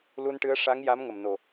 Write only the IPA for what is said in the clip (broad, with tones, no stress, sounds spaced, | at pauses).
l u˧ n ʈ ɨ˧˥ ə̯ ʂ a˧˥ ŋ j a˧˥ m ŋ ə˨˩ m n o˨˩